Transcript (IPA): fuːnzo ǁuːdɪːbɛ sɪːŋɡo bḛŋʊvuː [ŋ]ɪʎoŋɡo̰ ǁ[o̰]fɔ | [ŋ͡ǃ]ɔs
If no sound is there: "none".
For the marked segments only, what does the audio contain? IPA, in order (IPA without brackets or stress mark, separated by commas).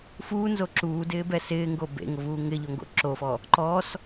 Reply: ŋ, o, ǃ